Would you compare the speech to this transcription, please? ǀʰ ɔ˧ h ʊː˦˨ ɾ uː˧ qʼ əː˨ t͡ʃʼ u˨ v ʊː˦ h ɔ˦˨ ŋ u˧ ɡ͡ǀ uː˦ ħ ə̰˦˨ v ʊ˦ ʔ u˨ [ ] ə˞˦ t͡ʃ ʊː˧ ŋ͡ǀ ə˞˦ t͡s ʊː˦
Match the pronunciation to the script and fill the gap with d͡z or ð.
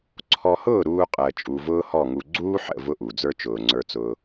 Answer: d͡z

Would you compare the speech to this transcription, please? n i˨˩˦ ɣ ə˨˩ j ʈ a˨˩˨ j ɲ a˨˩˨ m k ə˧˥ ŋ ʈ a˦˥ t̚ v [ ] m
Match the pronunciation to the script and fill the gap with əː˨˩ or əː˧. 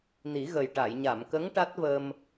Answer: əː˧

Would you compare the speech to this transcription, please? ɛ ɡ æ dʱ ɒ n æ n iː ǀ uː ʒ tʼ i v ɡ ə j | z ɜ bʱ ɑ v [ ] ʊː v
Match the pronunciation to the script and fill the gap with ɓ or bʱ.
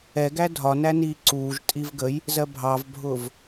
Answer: bʱ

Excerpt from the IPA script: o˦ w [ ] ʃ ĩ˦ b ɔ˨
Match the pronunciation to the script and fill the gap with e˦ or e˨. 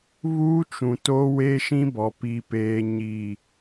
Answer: e˦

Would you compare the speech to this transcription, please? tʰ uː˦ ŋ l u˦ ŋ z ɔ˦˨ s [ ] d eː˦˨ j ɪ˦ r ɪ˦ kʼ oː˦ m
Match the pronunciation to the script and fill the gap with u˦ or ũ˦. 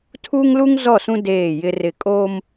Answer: ũ˦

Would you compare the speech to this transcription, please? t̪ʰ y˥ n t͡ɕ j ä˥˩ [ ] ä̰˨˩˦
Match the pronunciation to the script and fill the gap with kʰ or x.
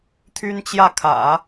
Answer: kʰ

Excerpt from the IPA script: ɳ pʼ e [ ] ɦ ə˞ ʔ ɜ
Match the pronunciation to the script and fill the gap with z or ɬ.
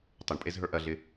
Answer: z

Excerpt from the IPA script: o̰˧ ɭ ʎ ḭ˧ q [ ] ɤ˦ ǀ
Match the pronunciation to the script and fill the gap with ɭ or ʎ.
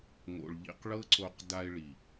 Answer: ɭ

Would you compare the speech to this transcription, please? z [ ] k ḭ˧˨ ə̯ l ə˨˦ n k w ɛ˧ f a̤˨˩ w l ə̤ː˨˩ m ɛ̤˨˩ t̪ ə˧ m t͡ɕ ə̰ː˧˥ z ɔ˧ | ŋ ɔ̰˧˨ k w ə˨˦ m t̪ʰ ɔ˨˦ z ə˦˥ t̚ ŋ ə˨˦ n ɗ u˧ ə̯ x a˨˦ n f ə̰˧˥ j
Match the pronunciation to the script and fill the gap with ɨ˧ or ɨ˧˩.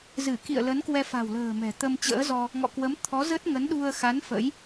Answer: ɨ˧˩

